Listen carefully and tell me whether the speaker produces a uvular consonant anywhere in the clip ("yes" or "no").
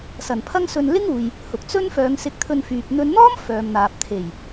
no